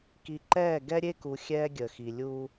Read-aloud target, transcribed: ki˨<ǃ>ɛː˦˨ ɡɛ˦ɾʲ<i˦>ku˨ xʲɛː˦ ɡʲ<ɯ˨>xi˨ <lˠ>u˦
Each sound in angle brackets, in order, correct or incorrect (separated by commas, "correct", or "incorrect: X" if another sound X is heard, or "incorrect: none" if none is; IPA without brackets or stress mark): correct, incorrect: e˦, incorrect: ə˨, incorrect: lʲ